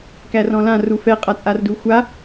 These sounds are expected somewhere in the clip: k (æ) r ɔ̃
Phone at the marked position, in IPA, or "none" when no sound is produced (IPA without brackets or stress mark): æ